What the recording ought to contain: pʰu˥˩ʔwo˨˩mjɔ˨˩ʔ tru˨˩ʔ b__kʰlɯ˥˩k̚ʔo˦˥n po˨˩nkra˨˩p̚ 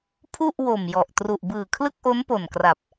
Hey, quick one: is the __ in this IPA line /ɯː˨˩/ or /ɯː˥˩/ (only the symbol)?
ɯː˨˩